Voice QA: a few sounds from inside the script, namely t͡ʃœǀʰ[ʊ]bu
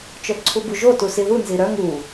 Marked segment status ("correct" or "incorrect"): incorrect